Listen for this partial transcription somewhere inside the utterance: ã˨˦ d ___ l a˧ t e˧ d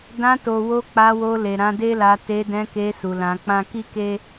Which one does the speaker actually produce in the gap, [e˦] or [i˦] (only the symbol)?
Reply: e˦